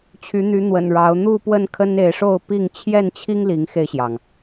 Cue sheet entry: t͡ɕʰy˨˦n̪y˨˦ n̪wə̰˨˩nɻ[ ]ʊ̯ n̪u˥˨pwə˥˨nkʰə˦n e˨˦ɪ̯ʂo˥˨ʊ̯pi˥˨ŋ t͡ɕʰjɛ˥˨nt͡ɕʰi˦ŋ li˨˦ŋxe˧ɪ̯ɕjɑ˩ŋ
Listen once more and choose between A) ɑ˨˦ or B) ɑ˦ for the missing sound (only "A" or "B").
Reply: A